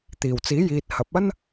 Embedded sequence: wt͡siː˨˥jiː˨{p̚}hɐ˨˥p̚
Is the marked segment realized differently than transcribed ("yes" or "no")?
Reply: yes